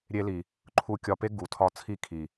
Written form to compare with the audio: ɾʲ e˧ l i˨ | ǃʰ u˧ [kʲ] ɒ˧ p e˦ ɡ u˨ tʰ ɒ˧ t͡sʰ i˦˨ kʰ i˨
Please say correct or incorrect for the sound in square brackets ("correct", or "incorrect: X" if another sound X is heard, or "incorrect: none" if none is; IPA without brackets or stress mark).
correct